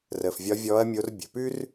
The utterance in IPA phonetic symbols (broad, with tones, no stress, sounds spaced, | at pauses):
r əː˩ f vʲ ɒ˨˦ vʲ ɔː˨˦ ɐ̯ mʲ o˨˦ r bʲ ə̤˩ p ʉ˦ r